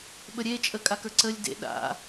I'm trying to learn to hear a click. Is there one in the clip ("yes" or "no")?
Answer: yes